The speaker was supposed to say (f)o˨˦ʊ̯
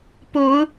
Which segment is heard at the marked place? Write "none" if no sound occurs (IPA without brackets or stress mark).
p